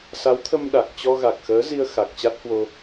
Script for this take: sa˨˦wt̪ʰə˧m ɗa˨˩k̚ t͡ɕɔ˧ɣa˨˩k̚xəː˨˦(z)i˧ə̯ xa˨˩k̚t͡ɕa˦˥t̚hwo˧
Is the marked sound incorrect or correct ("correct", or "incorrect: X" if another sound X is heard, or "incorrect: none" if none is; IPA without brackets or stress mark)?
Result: correct